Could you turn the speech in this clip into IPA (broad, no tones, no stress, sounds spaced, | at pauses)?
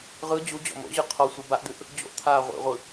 ʁ ɯ d͡ʑ u d͡ʑ ɔ̰ m o̰ ʑ ɯ qʰ ɔ sʷ ɯ b a ʔ d̪ ʉ ʔ | d͡ʑ o̰ ʔ t̪ʰ aː ʁʷ ḭ ʁʷ ɯ